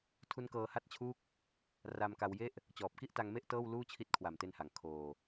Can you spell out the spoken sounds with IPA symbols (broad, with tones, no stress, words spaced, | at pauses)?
tʰu˦˥nkɤː˧ha˥˩t̚t͡ɕʰuː˥˩k̚ | ra˧mka˧wje˥˩ʔ | t͡ɕɔː˨˩p̚ki˥˩ʔta˧ŋme˥˩ʔ tɤː˥˩w luː˥˩t͡ɕʰi˦˥t̚ kʰwa˨˩mte˧nha˩˦ŋ kʰoː˧